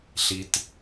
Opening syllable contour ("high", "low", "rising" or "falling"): low